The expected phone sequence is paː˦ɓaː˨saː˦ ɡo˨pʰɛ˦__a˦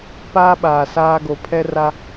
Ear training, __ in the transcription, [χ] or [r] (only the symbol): r